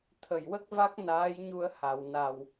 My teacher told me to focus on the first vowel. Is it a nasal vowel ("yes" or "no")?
no